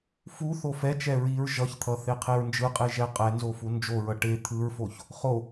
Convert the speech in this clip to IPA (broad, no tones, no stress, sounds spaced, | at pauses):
f u θ o f ɛ t͡ʃ ɛ ɹ i ɹ ʒ ʌ ç t̪ʰ ʌ θ e qʰ e ɹ n d͡ʒ ɯ qʼ e ʒ ɛ qʼ ɛ n z o f u n d͡ʒ o ɹ ʌ ʈ e t̪ʰ ɯ ɹ f o ç | χ o